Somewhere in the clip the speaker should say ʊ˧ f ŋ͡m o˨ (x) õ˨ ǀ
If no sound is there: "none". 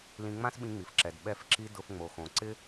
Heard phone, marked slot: x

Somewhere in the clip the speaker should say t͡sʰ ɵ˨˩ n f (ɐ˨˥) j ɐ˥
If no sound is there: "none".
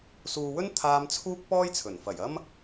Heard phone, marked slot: ɐ˨˩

